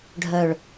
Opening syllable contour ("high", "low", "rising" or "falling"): low